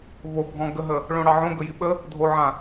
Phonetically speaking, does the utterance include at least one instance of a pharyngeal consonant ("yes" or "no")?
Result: yes